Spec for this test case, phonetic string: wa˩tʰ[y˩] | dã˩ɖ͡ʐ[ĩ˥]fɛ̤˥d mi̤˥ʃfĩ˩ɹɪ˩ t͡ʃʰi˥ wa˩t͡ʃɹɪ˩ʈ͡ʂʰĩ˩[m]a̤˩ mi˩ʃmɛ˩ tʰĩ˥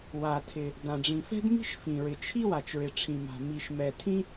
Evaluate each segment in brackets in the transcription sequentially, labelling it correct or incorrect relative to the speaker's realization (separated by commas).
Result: incorrect, incorrect, correct